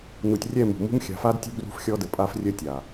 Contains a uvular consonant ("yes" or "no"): no